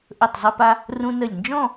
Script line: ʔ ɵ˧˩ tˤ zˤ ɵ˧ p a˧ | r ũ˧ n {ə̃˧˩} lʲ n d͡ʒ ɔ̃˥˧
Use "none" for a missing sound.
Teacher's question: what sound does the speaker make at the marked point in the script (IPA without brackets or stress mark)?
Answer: ə˧˩